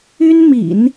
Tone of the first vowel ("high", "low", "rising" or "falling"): high